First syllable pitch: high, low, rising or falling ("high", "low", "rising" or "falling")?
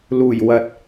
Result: low